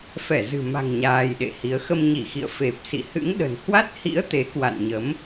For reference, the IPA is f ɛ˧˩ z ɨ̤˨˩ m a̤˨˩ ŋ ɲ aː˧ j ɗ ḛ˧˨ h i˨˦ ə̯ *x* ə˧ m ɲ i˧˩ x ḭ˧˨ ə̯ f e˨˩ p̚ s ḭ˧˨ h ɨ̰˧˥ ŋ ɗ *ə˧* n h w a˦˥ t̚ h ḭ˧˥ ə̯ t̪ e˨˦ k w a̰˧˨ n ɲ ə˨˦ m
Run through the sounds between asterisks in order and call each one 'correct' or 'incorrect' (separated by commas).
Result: correct, incorrect